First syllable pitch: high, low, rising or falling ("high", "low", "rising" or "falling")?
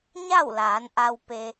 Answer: falling